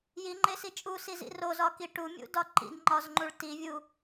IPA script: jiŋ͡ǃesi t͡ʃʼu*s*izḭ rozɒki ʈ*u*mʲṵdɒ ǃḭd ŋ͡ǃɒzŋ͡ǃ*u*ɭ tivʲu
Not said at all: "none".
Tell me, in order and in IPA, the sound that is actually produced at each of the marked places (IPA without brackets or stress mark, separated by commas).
s, u, u